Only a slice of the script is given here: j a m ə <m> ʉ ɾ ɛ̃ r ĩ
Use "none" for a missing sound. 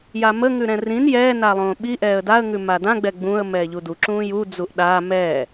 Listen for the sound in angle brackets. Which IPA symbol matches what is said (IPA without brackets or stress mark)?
ŋ